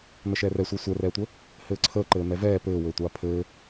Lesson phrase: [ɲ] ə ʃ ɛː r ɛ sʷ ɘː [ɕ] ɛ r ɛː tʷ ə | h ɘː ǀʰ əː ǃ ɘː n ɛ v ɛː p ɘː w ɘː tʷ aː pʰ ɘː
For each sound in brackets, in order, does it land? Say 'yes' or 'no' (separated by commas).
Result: no, no